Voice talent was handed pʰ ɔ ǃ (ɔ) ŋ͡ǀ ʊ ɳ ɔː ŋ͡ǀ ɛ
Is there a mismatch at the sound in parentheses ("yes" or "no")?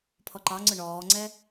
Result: yes